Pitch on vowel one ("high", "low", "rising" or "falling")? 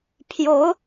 rising